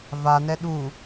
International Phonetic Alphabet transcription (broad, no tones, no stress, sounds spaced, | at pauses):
v a n ɛ ɗ u